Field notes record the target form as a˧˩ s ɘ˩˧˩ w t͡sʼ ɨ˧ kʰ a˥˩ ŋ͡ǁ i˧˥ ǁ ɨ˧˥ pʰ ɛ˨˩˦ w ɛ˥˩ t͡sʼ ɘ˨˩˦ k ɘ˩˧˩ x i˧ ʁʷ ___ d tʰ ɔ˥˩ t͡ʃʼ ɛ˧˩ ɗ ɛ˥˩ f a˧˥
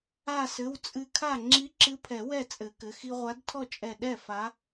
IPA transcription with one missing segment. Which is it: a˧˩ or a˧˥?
a˧˥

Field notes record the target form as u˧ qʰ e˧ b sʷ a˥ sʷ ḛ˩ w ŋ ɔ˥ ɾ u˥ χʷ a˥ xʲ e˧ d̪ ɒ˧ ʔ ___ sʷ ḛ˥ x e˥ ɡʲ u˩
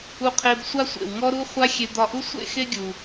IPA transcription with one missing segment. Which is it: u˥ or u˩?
u˥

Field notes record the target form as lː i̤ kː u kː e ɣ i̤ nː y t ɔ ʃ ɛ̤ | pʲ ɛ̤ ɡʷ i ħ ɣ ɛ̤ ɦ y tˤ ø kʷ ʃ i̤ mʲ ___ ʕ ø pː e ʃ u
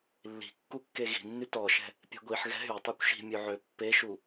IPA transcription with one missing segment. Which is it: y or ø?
ø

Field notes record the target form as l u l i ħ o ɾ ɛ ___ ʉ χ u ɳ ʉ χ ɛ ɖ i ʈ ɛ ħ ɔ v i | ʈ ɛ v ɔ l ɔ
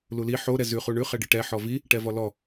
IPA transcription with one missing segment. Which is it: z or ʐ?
z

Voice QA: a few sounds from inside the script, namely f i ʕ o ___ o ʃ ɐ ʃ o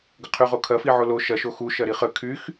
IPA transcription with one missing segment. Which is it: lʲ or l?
l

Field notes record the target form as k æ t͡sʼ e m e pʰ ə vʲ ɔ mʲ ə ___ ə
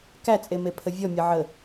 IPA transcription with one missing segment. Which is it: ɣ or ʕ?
ʕ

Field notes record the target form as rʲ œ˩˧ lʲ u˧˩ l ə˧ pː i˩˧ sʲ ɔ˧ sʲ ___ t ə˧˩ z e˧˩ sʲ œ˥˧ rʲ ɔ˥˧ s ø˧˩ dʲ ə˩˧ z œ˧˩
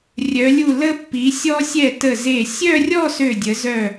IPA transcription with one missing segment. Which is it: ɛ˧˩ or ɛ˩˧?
ɛ˧˩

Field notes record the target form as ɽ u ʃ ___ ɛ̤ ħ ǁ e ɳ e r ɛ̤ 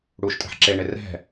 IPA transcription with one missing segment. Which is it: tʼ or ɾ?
tʼ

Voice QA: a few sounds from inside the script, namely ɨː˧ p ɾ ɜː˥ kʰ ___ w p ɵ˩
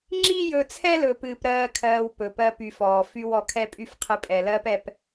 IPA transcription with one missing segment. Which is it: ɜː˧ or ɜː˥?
ɜː˧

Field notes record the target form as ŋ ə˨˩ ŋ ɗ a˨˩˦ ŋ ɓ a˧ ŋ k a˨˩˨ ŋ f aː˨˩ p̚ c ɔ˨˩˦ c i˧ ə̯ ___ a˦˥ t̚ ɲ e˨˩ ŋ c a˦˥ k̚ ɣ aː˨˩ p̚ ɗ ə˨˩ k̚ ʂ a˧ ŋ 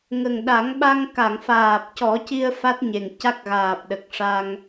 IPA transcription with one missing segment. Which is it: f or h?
f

